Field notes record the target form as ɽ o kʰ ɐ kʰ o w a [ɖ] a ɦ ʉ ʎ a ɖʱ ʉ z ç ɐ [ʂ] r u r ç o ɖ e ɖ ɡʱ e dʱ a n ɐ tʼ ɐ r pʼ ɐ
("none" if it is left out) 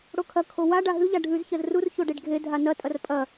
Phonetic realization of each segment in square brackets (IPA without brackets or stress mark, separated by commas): ɖ, z